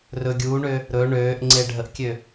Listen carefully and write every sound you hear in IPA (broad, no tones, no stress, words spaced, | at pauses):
rɵ ɡʲuːɳø | ɾɵ ɳøːʔŋ͡ǀe ɖʱəʔkʲø